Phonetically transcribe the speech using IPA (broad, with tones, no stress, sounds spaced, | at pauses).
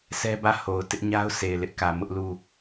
s ɛ˦ b ä˦˨ h o˨ ʊ̯ t ɪ˦ ʔ ɲ a˦ ʊ̯ s e˨ ɪ̯ l ɪ˦ ʔ k ä˨ m ʊ˦ ʔ l u˦˨